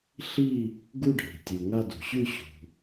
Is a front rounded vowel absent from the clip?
yes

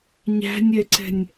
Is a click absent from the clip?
no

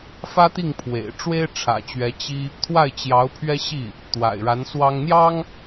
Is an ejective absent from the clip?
yes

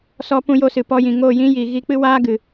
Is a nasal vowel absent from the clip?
no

